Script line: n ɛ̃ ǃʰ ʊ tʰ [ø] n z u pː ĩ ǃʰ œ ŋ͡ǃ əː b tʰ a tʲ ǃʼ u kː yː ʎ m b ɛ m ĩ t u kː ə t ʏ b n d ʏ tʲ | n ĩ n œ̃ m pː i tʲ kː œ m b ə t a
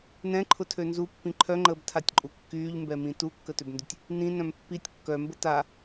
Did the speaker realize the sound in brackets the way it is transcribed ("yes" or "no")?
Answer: yes